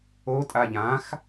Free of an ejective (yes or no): no